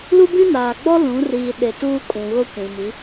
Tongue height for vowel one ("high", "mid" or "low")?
high